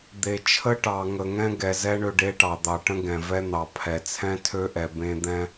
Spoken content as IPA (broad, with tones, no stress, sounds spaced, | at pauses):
d̪ e˨ t͡ʃʰ ə˦ ʈ ɑ˨ ŋ ə˨ ŋ ɛ̃˦ ɡ ɛ˨ z ɛ˦ ɳ ø˦ ɖ e˦ ʈ ɑ˨ d̪ ɑ˨ ʈ ə̃˦ ɡ ɛ̃˨ v ɛ˦ n̪ ɑ˨ pʰ ɛ˨ t͡sʰ ɛ̃˦ tʰ ø˦ ʔ ɛ˨ b ẽ˦ d̪ ɛ̃˦